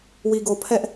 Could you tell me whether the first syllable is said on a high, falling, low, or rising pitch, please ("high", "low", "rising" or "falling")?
low